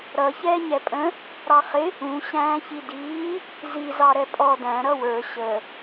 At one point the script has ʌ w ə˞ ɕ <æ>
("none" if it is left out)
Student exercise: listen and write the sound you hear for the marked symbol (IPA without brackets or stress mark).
ə